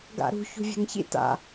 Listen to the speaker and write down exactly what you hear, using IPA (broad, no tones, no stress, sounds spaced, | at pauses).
ɡ a̰ ɾ ṳ ç ṳ vʲ a̤ ŋ ç ḭ t a̰